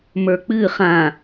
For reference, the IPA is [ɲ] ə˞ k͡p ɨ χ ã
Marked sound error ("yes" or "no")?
yes